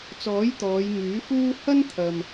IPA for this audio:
t͡sɔː˨˥j t̪ɔː˨˧jŋyː˨˥fuː˥ hɐ˥nt̪ʰɐ˨m

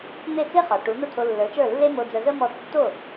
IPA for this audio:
n̪e˥˩t͡se˥χɒ˩ ʈu˩˥n̪ə˥˩ t̪ʰo˧lːə˞˩˥t͡ʃə˞˥˩lːe˥ mo˧d͡zə˧zə˥ mɔ˥˩ tːo˥˩

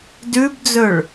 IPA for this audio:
dʉbd͡zɵɭ

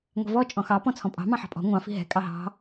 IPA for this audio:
ŋʷɛ̤vɔ t͡ʃʼɔ̃xɑ pɔ̃t͡sʰɔ̃pʼɑ̤ mɑ̃ħɑ̤pʼɔ̤ ŋʷɑ̃ fi̤ɦɛ̤ kʼɑɦɑ̤

